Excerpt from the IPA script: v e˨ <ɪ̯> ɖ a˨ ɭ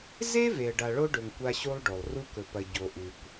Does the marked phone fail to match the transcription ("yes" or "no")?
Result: yes